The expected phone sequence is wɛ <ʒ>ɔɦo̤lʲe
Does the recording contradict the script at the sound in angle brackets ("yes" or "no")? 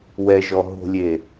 no